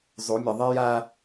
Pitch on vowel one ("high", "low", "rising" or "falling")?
rising